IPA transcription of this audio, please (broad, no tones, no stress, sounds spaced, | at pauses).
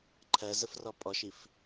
ǃʰ ɜ z ə f r ɔ pʼ ɔ ʃ i f